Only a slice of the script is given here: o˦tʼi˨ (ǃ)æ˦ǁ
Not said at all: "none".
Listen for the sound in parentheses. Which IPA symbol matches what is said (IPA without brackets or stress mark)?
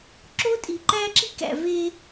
ǃ